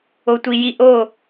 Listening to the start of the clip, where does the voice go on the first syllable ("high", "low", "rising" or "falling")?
low